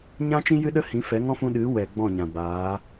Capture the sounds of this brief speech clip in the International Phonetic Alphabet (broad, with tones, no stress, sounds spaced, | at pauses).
ɲ ã˦ t͡ʃ ĩ˦ j ɨ˦ ɗ ə˦ h ĩ˨˦ f ɛ˨˦ ŋ ɔ̃˦ f ũ˧ ɗ ɨ˨˦ w ɛ˨ ɡ͡b ɔ̃˦˨ ɲ ã˨ b aː˨˦